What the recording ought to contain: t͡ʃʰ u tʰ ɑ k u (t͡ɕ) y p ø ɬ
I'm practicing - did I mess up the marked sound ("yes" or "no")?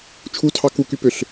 yes